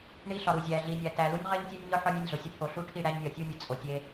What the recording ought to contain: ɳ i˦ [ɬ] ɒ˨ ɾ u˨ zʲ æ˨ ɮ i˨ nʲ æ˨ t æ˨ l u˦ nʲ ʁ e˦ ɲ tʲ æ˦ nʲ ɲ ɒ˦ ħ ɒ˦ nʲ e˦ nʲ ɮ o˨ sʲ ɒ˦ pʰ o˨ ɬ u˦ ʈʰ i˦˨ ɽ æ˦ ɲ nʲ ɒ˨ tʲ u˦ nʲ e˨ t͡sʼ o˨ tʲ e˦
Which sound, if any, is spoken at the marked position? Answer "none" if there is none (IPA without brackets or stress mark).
ɬ